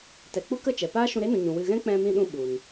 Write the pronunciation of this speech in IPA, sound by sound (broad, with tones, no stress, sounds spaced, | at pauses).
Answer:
t ɛ˨ k͡p u˦ k ə˦˨ t͡ʃ ɛ˨ p aː˦ ʃ ũ˧ ɾ e˦ n ũ˨ ɲ ũ˨ w ɨ˧ ɣ ɛ̃˦ k͡p ɛ̃˧ m ĩ˧ ɗ ũ˧ ɓ u˨ n